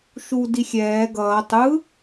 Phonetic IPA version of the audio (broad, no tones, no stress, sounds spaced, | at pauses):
ʃ u d i xʲ ɛː ɡ ʌː tˤ ɯ